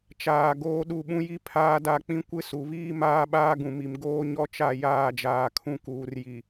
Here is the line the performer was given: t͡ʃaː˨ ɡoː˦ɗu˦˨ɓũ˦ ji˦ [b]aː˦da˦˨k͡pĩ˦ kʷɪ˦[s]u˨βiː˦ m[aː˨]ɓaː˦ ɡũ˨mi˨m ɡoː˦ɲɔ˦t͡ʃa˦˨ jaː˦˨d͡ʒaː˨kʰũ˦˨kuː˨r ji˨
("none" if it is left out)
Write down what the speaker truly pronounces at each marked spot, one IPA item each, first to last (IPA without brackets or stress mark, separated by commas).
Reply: pʰ, s, aː˦